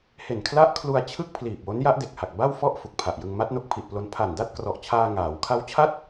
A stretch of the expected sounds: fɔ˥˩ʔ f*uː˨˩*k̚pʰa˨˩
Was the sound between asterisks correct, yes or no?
no